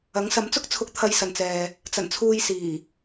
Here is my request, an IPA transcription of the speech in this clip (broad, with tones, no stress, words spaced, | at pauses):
ɐ˨˥ŋsɐ˨˥mt͡sʊ˥k̚t͡sʰʊ˧k̚ t̪ʰɐ˧jsɐ˨nt͡sɛː˨ | t͡sɐ˨˩nt͡sʰuː˨j siː˨˩